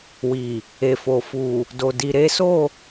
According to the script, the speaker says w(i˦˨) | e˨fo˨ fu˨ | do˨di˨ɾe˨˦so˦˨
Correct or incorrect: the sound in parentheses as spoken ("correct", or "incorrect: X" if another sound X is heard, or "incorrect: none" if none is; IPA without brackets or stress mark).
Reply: incorrect: i˨